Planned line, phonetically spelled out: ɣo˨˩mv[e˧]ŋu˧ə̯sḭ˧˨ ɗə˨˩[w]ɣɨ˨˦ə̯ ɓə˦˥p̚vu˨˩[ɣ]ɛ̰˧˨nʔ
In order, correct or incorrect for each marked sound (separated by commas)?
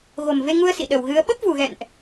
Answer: correct, correct, correct